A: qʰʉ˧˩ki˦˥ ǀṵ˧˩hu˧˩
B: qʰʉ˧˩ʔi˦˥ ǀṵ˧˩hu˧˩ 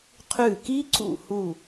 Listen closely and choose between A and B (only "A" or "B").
A